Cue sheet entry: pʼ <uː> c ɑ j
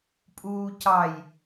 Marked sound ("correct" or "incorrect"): correct